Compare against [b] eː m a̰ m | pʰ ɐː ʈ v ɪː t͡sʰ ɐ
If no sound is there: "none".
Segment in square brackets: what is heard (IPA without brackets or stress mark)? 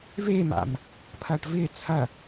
v